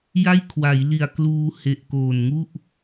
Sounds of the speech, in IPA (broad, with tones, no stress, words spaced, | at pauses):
ja˥˩jkʰwa˩˦jli˨˩a̯kluː˧ he˨˩ʔkoː˨˩n ŋu˥˩ʔ